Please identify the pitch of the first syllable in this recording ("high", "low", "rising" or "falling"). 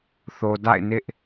low